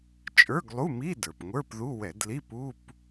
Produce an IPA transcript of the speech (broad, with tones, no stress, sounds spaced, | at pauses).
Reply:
t͡ʃʼ ə˞˧˥˧ ɡ lˠ u˧˥˧ m i˧˥˧ d ə˞˩ p ŋʷ ə˞˧˥˧ p ð u˧˥˧ w ɛ˧˩˧ d l i˧˥˧ p u˧˥˧ p